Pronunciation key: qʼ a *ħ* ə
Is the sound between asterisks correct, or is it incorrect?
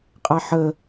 correct